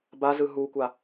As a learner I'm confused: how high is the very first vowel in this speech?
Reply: low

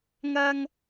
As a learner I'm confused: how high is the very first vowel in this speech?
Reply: low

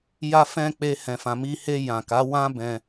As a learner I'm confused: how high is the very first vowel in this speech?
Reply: low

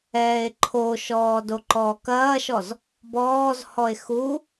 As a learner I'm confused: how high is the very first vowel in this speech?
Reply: mid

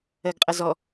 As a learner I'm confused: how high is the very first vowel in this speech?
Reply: mid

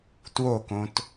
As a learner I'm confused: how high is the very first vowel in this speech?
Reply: mid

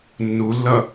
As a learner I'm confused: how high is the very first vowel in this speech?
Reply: high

